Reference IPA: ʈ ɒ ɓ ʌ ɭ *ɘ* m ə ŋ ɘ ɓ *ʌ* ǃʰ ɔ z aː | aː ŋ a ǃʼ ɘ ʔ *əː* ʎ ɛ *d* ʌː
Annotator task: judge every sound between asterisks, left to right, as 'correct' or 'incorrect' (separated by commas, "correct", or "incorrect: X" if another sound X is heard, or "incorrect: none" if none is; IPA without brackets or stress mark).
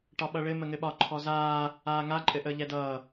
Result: correct, incorrect: ɒ, correct, correct